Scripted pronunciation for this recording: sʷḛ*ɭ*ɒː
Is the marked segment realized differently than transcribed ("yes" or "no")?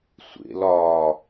yes